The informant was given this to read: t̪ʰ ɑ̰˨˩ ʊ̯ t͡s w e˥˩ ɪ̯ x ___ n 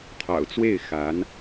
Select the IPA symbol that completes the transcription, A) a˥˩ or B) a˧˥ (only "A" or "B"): B